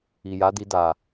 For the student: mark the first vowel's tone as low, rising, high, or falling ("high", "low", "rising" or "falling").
low